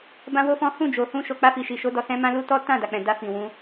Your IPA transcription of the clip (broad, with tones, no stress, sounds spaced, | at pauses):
b ã˦ w o˦ f ɔ̃˦ h ũ˦˨ d͡ʒ o˨ h ũ˧ ʃ o˨ k͡p a˧ f i˨ ʃ i˨ ʃ o˨˦ d ɔ˧ s ɛ̃˦ m ã˦ l u˦ t ɔ˦ t ã˦˨ d a˨ k͡p ɛ̃˨ d a˧ f ĩ˨ w ũ˨˦